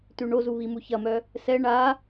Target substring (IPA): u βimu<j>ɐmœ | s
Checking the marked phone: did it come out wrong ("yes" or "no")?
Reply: yes